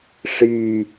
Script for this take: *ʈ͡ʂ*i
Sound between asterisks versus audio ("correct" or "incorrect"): incorrect